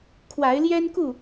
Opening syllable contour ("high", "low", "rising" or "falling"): rising